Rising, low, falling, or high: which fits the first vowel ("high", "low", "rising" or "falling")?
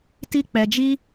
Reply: high